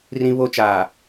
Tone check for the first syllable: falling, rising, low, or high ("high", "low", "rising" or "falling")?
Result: high